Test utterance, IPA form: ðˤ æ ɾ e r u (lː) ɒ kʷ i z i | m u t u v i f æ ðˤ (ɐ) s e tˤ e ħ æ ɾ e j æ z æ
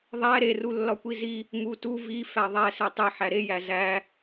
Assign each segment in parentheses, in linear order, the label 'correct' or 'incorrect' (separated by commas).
correct, incorrect